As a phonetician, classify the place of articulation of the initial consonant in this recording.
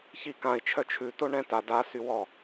palatal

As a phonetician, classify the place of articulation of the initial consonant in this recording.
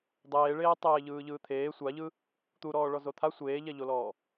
alveolar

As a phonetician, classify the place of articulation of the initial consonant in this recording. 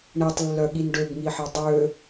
retroflex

